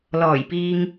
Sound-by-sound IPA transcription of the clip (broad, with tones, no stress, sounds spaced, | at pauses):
l ɔː˨˩ j p iː˨ ŋ